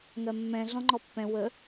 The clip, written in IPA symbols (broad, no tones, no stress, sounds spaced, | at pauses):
ŋ ɜ mː ɛ̃ ɮ ɔ̃ ŋ͡ǃ ɔ pː ɛ̃ w ə